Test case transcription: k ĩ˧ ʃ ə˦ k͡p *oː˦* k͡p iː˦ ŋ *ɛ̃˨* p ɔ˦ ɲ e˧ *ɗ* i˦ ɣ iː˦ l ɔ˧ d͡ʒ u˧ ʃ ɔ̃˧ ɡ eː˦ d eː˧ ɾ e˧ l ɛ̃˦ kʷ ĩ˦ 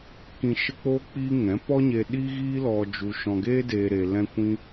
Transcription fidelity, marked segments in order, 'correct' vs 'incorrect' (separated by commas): correct, incorrect, correct